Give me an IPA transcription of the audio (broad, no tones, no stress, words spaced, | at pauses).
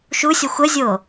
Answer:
ʃusʲɔxʷ əzʲo